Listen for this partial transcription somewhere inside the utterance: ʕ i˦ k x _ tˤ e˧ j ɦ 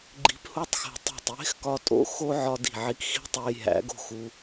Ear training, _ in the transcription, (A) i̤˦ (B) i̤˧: A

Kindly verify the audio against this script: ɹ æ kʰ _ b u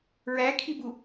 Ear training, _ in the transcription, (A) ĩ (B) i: B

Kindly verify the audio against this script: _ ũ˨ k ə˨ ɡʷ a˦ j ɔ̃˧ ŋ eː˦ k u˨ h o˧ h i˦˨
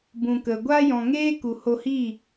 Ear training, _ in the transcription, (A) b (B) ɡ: A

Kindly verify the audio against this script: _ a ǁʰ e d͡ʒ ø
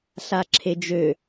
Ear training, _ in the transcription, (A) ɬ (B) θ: A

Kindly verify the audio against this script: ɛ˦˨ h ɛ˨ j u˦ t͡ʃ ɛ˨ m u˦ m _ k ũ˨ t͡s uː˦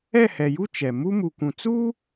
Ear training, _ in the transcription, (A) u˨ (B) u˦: A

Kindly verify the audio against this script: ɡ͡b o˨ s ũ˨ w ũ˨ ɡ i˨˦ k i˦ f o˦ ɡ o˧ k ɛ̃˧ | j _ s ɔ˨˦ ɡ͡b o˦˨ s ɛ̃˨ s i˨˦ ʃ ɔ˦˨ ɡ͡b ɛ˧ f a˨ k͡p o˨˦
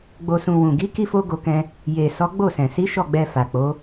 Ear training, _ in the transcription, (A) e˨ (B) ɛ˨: A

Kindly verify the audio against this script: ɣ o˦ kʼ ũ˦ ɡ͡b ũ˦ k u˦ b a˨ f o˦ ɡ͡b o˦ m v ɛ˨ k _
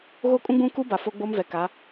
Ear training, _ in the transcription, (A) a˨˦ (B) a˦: A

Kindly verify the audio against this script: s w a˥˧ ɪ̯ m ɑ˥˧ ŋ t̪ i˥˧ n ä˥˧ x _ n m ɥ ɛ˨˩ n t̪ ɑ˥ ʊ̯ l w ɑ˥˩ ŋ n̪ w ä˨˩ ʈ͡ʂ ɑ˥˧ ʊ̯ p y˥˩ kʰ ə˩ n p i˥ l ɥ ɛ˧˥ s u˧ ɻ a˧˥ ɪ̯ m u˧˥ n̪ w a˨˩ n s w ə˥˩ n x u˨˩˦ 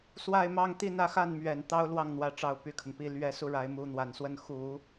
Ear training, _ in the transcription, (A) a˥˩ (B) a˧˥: A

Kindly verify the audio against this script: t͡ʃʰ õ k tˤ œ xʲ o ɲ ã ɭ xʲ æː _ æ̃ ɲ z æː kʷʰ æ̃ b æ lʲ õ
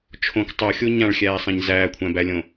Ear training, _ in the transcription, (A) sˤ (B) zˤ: A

